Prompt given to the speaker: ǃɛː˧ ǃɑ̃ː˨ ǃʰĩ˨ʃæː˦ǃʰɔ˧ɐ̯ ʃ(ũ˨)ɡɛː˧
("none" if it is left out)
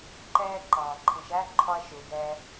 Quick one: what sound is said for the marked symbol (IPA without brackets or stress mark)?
u˨